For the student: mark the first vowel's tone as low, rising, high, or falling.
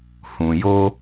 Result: low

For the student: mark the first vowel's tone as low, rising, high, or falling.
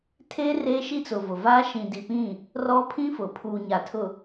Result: high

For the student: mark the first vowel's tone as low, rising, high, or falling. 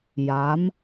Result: rising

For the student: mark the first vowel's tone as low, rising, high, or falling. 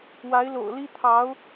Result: rising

